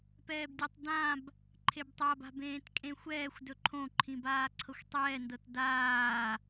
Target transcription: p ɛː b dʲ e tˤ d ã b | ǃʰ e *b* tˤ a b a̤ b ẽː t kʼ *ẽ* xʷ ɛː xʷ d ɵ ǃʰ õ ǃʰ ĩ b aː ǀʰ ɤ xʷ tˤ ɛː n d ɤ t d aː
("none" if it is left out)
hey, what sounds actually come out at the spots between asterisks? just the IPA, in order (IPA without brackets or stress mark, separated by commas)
b, ẽ